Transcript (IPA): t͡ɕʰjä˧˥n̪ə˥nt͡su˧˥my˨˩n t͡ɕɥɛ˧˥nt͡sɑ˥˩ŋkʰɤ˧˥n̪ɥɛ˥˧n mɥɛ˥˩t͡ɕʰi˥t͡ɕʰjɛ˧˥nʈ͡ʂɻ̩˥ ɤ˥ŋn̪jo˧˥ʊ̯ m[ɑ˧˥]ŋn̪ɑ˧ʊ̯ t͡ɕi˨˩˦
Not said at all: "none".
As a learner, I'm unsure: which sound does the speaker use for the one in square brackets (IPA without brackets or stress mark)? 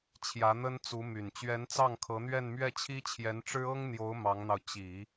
ɑ˧˥